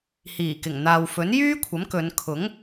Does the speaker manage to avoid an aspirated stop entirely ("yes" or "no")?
no